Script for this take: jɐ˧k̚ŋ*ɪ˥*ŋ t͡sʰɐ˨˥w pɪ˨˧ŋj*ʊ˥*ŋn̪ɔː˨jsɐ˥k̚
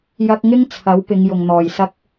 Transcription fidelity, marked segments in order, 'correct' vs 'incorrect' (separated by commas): correct, incorrect